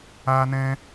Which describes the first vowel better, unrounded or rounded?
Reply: unrounded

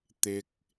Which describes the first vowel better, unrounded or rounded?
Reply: unrounded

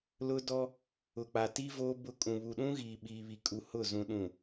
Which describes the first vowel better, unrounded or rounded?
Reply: rounded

